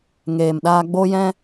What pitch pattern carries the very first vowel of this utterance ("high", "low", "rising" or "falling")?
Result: low